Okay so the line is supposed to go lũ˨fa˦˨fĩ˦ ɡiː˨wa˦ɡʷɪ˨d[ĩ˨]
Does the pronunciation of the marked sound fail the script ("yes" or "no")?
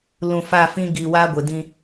yes